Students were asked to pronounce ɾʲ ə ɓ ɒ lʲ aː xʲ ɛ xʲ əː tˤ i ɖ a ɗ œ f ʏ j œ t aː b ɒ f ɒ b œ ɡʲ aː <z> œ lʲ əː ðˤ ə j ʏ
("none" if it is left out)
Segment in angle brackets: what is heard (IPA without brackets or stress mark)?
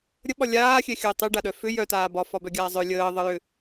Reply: zˤ